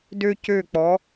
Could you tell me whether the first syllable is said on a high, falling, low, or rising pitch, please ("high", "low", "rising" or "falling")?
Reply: high